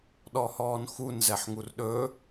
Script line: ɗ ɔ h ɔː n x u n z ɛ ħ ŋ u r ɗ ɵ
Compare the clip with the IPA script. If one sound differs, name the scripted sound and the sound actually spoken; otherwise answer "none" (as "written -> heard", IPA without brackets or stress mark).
none